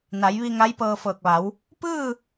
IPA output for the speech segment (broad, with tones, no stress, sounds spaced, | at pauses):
n a˩˧ j ʋ i˧ ŋ a˧˥ j p ɤː˧ f ɤː˧˩ k̚ ʋ a˩˧ w | p ɯː˥˨